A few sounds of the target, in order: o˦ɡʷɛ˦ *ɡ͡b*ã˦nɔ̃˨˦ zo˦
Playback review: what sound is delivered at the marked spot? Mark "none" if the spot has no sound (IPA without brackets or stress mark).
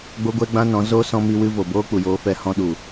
ɡ͡b